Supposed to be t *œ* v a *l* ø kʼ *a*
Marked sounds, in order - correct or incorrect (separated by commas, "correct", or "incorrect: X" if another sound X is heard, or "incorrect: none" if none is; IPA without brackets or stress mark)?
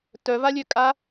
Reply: correct, incorrect: lʲ, correct